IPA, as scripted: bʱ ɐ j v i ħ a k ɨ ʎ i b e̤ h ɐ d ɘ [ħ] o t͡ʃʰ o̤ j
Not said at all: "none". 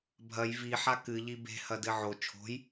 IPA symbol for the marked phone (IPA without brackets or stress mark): ʕ